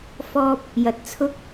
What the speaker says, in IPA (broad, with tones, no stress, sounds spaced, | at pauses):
f ɔː˥ p̚ | j ɐ˧ t̚ t͡sʰ ʊ˥ k̚